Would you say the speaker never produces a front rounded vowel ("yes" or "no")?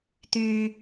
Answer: no